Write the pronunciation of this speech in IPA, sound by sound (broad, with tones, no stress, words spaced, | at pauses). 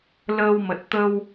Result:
ləː˧wmə˨˩t̚ t̪ə˧w